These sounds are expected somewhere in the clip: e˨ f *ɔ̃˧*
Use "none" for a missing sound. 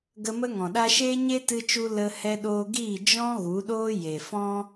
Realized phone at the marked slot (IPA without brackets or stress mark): ɔ̃˦